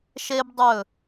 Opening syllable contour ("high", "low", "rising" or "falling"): high